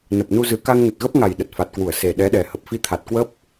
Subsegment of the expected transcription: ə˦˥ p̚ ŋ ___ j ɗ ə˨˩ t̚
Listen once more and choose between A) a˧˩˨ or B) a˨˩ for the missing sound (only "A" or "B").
B